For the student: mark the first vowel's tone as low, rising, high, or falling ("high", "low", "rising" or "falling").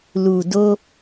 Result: low